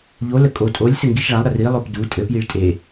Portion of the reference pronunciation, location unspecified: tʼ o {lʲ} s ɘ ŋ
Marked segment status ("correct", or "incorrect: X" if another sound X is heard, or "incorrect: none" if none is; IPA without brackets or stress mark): correct